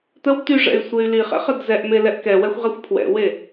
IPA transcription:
t̪əw t̪yʐɛ̰y̯ sʷey̯liχɛ̰ χədzɛʔme lɛʔkɛwɛxʷ ʁɛxʷpʰwɛ̰we

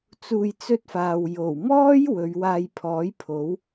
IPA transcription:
t͡suː˧jt͡sɵ˥t̚faː˨w jo˨˩wmɔː˥j wɵ˨˧ɥwaː˧jpʰɔː˨˥j pʰo˨˥w

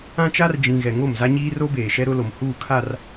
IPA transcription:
ã˦t͡ʃa˦rd͡ʒĩ˨ ɣɛ˨ŋo˦˨mza˦ɲiː˦ ro˦beː˨ʃɛ˦ ɾʊ˦lo˨m huː˦˨kʰa˦˨r

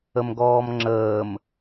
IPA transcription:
əmɡɔːmŋ͡ǁəːm

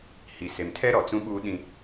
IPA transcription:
hi˨se˨mtʰɛ˦ ɾɔ˨t͡sũ˦ɓuː˦ɗĩ˦

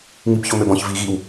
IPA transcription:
ŋibçomøbɔ̃ç viɣiw

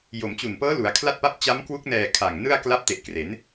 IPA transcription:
jo˩˦mt͡ɕu˨˩npɤː˦˥ lu˩˦a̯kʰla˥˩t̚pa˥˩p̚ t͡ɕa˦˥mkwu˦˥k̚nɛː˨˩ kʰa˨˩ŋnɯ˥˩a̯kla˥˩p̚ te˨˩ʔkre˩˦n

